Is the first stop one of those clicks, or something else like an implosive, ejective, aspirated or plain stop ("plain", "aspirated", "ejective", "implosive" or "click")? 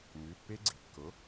plain